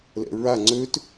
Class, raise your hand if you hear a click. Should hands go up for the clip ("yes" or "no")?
yes